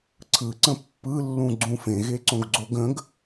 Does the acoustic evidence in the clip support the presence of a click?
yes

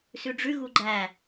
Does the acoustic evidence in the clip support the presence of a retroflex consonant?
yes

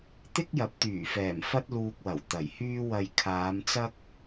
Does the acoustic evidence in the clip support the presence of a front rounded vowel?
yes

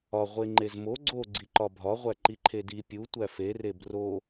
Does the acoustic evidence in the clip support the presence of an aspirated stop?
yes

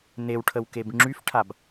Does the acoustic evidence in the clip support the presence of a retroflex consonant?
yes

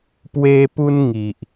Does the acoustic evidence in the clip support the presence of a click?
no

